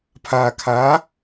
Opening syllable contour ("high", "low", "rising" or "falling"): low